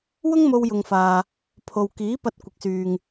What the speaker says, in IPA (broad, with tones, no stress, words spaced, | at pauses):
wʊ˥ŋmo˧wjʊ˨ŋfaː˨ | pʰo˨w kiː˨˥pɐ˧t̚ kʷɪ˨˥k̚syː˨ŋ